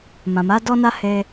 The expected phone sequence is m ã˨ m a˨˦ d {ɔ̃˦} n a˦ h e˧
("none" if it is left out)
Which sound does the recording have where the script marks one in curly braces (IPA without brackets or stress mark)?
ɔ˦